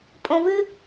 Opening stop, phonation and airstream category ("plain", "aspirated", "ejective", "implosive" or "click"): ejective